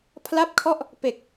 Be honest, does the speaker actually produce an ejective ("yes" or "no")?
no